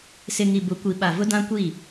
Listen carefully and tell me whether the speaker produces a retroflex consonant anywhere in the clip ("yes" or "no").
no